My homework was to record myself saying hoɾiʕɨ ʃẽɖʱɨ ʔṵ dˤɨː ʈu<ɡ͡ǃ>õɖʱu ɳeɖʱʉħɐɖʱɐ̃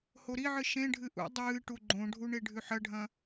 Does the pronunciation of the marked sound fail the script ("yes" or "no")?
no